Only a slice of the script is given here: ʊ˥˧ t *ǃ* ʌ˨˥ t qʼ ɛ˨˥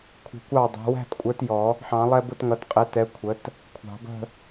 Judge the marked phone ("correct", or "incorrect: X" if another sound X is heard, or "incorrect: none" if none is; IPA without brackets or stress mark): incorrect: ŋ